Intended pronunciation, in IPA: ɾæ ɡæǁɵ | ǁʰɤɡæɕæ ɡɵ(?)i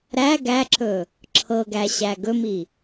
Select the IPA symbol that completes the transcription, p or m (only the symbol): m